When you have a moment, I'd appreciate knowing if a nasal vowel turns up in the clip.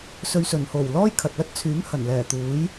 no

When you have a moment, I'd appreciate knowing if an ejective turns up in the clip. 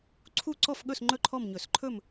no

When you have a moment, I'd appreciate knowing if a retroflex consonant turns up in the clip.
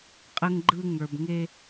no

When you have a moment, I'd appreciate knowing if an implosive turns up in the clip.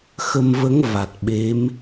yes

